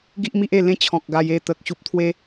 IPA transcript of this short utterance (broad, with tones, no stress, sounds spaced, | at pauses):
ɡ i˦ ʔ m i˦ ʔ e˥˧ l ẽ˦ t͡ɕʰ ɔ̃˨ k̚ ɡ a˧ j e˥˧ t̪ ə˨ k̚ ɕ u˨ p̚ t̪ʰ w e˧